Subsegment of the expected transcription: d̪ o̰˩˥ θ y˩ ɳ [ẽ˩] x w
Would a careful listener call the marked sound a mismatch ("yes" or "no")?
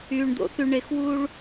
yes